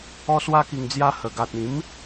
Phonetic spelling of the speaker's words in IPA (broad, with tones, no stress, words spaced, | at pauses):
ɔ˧swa˧ki˨˩ŋd͡zja˧ hə˨˩ɡa˨t̚ ĩ˨˦m